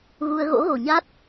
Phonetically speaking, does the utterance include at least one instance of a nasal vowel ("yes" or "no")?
no